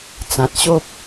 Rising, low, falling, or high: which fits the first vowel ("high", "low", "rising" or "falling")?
low